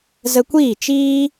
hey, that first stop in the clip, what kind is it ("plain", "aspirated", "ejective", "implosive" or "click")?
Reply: plain